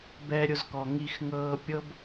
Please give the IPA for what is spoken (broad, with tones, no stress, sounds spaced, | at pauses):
b ɛ˧ ɾʲ ʊ˧ z k ɔ˨ ŋ i˧ x ŋ ɤː˧ pʲ ɤ˦ b